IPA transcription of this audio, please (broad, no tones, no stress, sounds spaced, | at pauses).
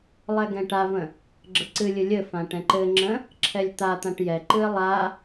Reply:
lˠ ɛ ɡ ɛ̃ ʈ a v ə̃ | ɡ͡ǁ ə ǀ ɨ lʲ ɨ lʲ ɘ f ã ʈ ɛ̃ ǃ ɘ ŋ͡ǁ ə̃ | ǁʰ ɛ lʲ t̪ a t̪ ã ʈ j ɛ ǃ ɨ ɪ̯ lˠ a